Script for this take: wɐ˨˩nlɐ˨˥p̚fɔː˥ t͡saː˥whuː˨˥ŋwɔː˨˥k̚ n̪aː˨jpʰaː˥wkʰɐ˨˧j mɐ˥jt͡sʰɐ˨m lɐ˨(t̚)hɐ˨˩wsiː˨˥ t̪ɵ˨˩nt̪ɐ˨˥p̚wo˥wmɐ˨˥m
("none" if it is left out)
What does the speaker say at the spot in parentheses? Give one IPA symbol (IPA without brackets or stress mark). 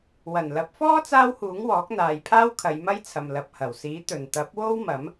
p̚